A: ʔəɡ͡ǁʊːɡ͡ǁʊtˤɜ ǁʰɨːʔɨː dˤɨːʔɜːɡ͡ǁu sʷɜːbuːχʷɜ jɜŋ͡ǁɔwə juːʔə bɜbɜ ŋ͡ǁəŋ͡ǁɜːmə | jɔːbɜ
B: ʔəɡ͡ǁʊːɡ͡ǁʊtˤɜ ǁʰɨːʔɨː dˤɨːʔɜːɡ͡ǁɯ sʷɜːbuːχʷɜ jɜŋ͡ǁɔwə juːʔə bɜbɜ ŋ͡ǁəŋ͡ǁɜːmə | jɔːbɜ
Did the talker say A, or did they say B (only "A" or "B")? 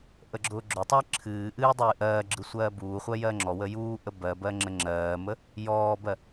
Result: B